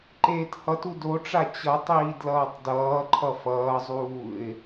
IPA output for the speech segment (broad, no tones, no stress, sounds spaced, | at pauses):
ǃ eː t h ʌ t u d o ʈ͡ʂ a t͡ɕ ʌ tˤ iː d l ʌː tˤ d ʌː ǃʰ ʌ f ʌː zˤ uː ɪ̯